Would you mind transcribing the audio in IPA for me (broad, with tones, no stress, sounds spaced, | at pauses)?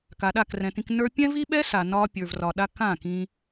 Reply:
k a˨ ɗ a˦˨ k r ɛ̃˨ t ĩ˧ k n ə˞˧ pʲ ɛ̃˦ v i˦ ɓ ɛ˦ s a˨ n ɒ˧ pʲ ə˞˨ v r ɒ˨ ɗ a˧ k ã˦˨ k ĩ˧